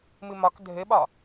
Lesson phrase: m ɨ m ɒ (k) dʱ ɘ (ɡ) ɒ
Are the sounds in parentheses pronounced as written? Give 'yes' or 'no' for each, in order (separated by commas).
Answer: yes, no